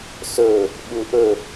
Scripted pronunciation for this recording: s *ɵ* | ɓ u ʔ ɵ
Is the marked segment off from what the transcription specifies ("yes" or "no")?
no